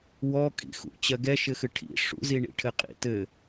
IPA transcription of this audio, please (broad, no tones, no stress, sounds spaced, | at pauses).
w ɔ kʼ ḭ x ṵ t͡ɕ ɜ ɡ ɛ ʃ ɘ x ɨ ʈʰ ḭ ʂ ṵ z i ɳ ḭ ʈʰ ɘ qʼ ḭ t ɘ